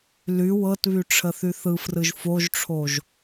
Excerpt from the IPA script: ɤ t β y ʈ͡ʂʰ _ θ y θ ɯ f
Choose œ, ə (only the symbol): ə